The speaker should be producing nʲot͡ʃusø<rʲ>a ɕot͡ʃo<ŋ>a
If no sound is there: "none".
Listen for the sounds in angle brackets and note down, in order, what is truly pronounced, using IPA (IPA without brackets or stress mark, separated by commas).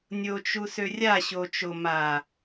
rʲ, m